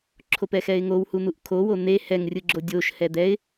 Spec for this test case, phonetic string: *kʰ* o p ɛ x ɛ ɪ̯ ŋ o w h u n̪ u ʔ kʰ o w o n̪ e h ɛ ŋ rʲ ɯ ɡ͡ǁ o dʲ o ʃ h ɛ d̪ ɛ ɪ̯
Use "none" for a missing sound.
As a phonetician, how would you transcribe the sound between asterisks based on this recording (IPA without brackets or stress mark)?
ǁʰ